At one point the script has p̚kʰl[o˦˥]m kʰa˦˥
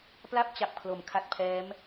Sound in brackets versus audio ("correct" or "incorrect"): incorrect